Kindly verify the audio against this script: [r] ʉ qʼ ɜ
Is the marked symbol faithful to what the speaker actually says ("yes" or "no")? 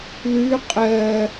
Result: no